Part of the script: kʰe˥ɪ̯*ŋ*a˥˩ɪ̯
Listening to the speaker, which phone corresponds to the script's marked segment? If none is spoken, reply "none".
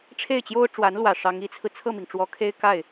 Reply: k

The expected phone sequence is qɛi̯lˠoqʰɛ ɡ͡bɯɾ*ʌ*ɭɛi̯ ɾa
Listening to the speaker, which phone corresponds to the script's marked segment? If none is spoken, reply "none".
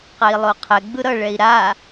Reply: ʌ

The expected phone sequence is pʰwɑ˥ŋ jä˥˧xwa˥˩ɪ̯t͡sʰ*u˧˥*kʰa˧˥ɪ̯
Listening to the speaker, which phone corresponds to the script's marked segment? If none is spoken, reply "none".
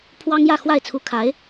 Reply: u˧˥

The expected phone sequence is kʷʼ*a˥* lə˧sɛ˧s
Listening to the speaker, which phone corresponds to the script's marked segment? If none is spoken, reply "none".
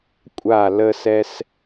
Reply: a˧˩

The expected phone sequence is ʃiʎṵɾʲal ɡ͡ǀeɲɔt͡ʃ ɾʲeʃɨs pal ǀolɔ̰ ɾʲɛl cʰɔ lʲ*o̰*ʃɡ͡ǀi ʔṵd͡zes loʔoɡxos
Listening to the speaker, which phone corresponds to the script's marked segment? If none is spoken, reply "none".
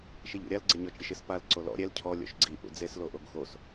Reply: o̰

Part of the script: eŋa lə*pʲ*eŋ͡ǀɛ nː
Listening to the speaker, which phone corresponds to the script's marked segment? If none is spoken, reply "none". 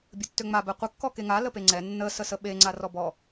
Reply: p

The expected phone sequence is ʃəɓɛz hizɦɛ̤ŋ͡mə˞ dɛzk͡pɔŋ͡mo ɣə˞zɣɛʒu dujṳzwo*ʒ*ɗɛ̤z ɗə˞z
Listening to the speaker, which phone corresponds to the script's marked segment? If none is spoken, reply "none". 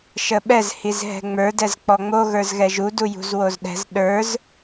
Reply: z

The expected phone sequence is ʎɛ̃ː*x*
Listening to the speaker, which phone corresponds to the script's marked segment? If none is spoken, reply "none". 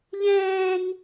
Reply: ŋ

